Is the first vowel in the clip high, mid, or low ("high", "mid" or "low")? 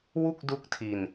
high